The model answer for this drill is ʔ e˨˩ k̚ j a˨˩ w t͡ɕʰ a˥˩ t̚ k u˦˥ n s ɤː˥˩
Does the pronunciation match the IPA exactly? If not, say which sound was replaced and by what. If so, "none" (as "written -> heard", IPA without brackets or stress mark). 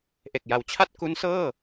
none